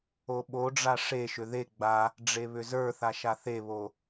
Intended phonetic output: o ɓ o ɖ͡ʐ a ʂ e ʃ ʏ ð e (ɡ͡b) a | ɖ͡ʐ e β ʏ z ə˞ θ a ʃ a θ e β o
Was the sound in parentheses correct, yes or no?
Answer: yes